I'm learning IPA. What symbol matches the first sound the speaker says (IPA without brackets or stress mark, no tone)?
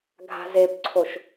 ɡʱ